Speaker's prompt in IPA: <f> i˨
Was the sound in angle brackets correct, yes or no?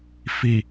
yes